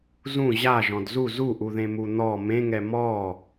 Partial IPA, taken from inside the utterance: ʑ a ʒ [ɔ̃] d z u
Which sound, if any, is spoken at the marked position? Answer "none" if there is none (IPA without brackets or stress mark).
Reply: ɔ̃